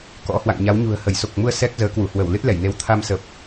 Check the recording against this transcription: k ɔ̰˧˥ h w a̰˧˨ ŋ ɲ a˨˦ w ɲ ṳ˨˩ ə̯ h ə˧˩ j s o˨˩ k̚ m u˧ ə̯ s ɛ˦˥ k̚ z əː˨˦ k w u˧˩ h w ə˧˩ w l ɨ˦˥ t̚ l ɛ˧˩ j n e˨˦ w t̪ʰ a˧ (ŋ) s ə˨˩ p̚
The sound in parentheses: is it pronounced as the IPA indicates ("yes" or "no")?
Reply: no